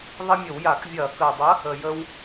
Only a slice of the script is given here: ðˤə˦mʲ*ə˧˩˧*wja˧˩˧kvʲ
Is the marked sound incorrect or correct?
correct